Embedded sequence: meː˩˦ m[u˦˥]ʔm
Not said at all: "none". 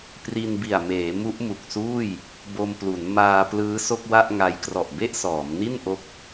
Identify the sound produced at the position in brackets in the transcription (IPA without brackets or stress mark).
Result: u˦˥